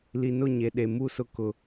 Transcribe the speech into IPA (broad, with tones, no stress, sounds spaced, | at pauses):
l i˨ n ʊ˦˨ ɲ e˨ ɗ e˨ m u˦˨ s ʊ˦ k ʊ˨